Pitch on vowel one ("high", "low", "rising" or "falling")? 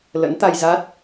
rising